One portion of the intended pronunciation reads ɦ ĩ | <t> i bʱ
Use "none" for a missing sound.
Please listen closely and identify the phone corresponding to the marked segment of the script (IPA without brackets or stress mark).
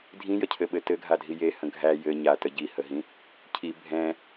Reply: cʰ